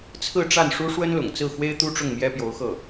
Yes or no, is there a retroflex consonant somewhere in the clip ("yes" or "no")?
yes